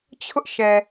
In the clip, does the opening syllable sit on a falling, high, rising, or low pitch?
high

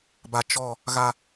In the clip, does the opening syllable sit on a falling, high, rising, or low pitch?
low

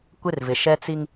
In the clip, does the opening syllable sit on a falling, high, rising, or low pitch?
high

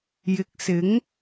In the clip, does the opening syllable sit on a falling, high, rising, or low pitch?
low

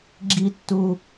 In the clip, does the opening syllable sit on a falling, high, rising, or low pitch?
high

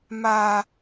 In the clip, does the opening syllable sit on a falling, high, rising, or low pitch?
high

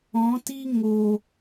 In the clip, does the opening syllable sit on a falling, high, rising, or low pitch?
rising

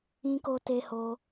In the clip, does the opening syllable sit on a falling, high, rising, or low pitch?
high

